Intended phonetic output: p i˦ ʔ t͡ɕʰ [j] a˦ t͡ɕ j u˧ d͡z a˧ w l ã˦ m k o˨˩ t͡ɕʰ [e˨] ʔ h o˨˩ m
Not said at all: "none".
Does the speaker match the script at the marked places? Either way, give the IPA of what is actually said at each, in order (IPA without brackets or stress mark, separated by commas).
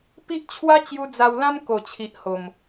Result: w, i˨